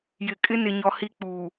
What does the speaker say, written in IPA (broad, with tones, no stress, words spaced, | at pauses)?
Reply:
jɪ˨kʼɪ˦nɪ˨ɲɔ˨ hi˦k͡puː˨